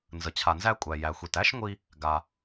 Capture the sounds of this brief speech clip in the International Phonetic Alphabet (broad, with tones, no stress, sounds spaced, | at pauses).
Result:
n z ə˩ t͡ɕʰ a˩ n z æ˧ kʷʼ æ˩ j æ˩ xʷ i˩ t æ˥ ʃ ŋʷ i˧ | ɡ a˩